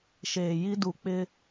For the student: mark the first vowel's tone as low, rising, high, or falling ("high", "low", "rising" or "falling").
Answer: low